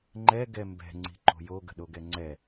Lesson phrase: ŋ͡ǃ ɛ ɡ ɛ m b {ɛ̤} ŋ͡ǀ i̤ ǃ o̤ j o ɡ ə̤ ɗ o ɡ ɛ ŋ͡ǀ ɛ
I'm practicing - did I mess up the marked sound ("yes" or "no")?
no